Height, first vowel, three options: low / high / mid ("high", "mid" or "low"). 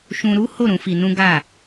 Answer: high